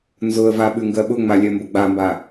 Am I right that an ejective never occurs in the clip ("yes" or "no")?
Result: yes